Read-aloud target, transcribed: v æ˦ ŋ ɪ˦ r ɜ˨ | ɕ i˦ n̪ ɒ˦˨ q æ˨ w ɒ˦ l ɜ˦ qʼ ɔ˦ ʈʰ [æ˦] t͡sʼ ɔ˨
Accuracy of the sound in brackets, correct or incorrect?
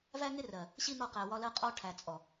incorrect